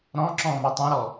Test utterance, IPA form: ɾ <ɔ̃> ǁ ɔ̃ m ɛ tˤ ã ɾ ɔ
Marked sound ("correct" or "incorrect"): correct